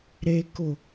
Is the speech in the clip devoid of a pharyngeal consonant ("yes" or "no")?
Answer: yes